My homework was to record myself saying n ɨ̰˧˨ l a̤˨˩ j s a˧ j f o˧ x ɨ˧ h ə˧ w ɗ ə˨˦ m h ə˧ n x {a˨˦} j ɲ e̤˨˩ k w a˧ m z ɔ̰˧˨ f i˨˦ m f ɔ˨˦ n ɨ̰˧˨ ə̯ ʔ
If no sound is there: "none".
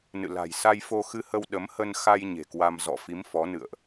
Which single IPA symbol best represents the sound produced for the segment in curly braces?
a˧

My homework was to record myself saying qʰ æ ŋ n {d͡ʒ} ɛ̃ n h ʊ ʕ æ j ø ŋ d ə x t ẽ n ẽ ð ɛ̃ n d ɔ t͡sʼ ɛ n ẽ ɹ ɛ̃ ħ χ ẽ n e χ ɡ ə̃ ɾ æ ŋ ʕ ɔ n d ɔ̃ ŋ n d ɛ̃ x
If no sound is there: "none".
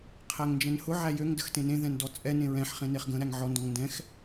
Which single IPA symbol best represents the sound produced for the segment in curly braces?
d͡ʒ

